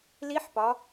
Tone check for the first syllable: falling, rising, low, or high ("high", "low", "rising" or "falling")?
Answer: rising